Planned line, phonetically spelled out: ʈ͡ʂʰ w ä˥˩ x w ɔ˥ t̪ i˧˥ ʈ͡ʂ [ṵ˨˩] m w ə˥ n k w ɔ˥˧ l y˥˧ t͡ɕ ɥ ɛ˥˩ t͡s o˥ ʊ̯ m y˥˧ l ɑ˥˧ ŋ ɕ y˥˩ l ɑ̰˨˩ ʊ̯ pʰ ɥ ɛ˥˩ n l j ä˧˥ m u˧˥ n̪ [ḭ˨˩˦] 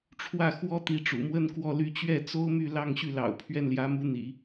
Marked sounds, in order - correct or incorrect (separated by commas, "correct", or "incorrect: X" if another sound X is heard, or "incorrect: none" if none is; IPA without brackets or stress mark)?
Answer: correct, correct